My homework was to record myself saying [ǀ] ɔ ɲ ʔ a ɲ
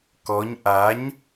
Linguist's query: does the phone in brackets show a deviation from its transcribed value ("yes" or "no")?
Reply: yes